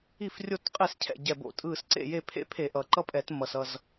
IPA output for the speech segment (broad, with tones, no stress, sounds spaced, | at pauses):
i˥˩ f rʲ o˥˩ t qʼ e˥˩ s cʰ ɛ̰˥˩ ɟ ɛ˧˩ b o̰˧˩˧ tʼ ɯ˧˩ s ǀ ḛ˥˩ j e˥˩ pʰ ḛ˦ pʰ e˧˩˧ ʔ ʌ˩ ǃ ʌ˦ pʼ ɛ˧˩˧ t m ʌ˩ s ʌ˧˩ z